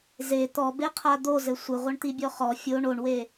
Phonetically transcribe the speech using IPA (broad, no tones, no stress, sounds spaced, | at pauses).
z e t̪ ɔ b e qʰ a d̪ o z ɘ sʷ ɘ ʁʷ ɐ ɳ t̪ i bʲ ɔ χ ɔ fʲ o ɳ o ɳ w e